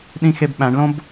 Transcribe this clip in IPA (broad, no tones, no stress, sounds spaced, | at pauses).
ɗ ĩ x e b ɓ æ̃ ɳ l õ b